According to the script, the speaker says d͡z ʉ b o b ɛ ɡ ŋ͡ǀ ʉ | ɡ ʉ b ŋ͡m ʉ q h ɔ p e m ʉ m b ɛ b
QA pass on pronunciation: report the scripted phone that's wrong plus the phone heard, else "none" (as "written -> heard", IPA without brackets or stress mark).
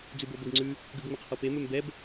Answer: none